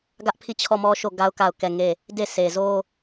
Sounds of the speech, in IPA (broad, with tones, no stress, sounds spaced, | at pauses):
ɡ ä˦ ʔ pʰ i˦˨ t͡ɕʰ ɔ˦˨ m ɔ˦ ʃ o˦˨ ɡ a˦ ʊ̯ k a˦˨ ʊ̯ k ɛ˦˨ ŋ e˦˨ | d e˦˨ sʰ e˨ z o˦